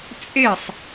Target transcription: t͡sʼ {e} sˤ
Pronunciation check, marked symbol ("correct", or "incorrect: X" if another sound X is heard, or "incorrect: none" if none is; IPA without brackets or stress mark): correct